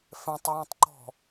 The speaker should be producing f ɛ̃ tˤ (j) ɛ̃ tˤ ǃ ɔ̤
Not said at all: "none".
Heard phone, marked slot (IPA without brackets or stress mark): j